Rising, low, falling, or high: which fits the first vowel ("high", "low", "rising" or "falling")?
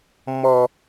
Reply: low